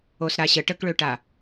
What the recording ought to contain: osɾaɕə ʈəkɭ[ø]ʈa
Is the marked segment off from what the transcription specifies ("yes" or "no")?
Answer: no